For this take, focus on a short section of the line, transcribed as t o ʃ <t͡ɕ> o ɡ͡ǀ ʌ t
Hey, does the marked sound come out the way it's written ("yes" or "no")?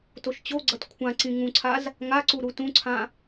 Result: yes